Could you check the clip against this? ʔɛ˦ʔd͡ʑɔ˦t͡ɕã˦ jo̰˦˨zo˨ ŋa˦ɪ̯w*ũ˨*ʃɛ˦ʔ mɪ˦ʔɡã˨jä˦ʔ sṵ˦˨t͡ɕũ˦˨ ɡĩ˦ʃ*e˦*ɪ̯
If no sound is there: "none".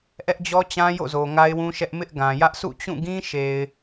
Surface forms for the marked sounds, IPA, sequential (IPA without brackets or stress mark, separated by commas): ũ˦, e˨